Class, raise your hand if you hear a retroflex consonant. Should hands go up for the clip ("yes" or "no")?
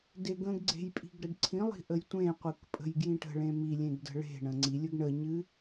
yes